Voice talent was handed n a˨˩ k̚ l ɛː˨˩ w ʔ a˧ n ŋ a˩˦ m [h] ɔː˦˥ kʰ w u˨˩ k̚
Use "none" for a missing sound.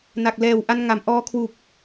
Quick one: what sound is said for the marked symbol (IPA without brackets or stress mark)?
ʔ